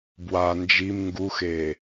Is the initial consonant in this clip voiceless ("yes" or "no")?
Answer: no